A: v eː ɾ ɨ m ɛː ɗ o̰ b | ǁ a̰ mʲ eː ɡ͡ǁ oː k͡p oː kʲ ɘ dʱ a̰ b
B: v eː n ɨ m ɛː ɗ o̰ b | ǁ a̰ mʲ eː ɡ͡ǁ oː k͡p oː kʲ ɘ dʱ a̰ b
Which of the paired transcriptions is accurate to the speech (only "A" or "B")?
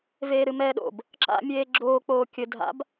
A